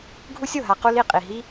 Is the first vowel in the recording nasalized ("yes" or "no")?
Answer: no